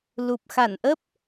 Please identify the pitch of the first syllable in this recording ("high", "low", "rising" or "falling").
low